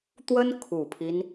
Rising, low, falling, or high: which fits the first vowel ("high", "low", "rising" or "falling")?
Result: high